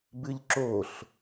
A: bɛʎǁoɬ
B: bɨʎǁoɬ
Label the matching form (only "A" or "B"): B